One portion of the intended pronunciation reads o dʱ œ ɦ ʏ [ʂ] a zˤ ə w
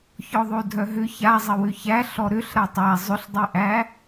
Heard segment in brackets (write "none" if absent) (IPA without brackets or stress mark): ç